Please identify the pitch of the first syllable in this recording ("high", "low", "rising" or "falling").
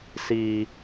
low